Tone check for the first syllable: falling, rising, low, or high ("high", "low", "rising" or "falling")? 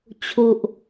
low